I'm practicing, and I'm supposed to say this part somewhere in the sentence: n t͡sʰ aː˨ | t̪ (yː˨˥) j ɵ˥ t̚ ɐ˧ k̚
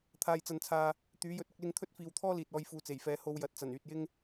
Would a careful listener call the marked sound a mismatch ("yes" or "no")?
no